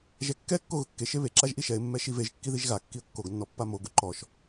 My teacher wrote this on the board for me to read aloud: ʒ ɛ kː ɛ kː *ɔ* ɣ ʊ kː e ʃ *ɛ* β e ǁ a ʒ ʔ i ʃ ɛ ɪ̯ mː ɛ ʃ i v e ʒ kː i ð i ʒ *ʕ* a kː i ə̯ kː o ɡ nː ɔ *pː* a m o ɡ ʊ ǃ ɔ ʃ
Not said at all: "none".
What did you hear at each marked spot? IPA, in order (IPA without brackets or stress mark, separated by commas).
o, e, ɣ, pː